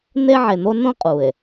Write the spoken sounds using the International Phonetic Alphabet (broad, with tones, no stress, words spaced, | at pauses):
n̪e˦ʕe˨n̪o˦ nõ˦ qʼu˨e̯